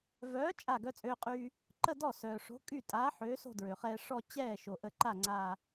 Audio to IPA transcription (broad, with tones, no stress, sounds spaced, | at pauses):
v œː˨˥ t͡ʃʼ a˧˩ ɡ œ˧ t͡sʼ øː˧ qʼ yː˧ | ǃ ə˥˧ d ɔ˥˩ s œː˩ ʂ o̤˨˥ kʼ y˥˩ tʼ aː˨˥ ħ øː˨˥ s o̤˥˧ d ɹ ø˩ χ ɛː˧ ʂ ɔ˥˧ t͡ɕ ɛː˥˩ ʃ o˩ ʔ ə˧˩ ǃ a˥˩ ŋ͡ǀ aː˧˩